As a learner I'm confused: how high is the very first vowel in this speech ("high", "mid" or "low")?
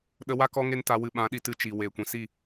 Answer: mid